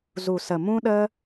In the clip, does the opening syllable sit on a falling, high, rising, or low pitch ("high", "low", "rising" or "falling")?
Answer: low